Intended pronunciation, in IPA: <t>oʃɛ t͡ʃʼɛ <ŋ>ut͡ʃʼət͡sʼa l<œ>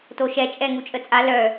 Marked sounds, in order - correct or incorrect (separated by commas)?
correct, correct, correct